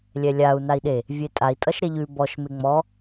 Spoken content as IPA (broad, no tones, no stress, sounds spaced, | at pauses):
lʲ ɛ lʲ a u̯ n a i̯ ɗ e | vʲ e tʼ a i̯ tʼ ʌ ʃ ɾ e ʎ ʉ b ɔ ʃ m e ŋ͡m ɔ